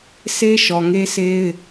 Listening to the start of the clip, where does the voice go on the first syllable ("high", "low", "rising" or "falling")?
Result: high